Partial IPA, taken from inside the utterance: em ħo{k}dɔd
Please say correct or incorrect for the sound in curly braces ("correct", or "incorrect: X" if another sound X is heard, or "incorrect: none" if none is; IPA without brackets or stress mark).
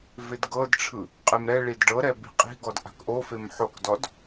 correct